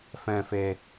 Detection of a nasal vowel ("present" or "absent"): present